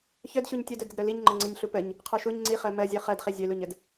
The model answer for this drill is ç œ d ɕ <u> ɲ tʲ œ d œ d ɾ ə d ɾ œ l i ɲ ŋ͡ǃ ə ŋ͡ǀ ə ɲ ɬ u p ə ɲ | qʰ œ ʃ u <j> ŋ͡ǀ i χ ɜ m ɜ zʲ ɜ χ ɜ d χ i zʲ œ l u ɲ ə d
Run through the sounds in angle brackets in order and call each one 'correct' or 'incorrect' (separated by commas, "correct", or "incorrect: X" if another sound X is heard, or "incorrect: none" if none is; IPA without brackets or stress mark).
correct, incorrect: ɲ